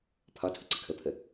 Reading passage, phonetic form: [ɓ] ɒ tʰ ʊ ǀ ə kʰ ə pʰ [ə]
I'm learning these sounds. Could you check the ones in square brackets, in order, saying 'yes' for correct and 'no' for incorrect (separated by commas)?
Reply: no, yes